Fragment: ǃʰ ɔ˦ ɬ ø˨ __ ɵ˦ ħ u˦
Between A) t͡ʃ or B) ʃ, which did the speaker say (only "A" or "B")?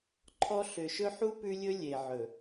B